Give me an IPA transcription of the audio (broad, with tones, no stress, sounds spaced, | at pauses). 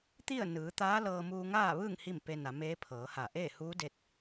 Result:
t̪ i˥˨ ə̯ n ɯː˩˧ t̪ aː˧˥ l ɤː˧ m uː˧ ŋ aː˥˨ ʋ ɯː˥˨ ŋ h i˥˨ m p e˧ n a˩˧ m eː˧˥ pʰ ɤː˩˧ h a˧˩ ʔ eː˥˨ h uː˧˥ d e˧ t̚